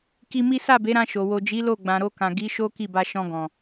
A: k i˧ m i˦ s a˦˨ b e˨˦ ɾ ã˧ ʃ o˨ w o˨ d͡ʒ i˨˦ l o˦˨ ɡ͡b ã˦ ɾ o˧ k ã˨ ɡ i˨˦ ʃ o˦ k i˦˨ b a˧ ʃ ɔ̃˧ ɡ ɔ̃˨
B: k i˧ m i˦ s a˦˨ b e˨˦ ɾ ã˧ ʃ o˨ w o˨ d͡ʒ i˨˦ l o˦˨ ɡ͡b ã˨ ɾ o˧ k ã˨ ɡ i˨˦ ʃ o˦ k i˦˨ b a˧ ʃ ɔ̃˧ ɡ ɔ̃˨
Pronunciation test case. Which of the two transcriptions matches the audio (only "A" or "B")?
B